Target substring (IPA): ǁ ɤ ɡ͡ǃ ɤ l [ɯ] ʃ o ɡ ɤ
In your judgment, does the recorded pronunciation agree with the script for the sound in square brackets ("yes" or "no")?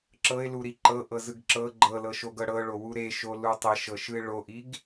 no